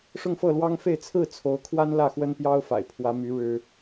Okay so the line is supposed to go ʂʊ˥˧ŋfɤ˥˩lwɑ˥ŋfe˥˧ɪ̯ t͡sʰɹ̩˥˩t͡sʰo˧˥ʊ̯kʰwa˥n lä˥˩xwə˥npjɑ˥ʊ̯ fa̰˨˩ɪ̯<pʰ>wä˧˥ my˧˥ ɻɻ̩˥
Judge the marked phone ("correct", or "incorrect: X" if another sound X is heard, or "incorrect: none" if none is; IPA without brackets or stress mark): correct